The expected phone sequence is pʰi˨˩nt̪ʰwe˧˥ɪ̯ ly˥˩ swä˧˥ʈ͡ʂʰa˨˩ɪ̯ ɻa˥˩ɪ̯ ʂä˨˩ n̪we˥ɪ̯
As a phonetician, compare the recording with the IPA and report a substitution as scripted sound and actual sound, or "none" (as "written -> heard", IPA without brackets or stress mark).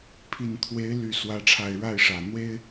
none